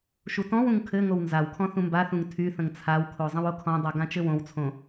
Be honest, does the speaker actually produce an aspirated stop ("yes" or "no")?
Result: yes